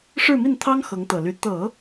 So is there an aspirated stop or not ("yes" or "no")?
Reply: yes